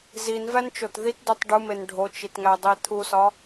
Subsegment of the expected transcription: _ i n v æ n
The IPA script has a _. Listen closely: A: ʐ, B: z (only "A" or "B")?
B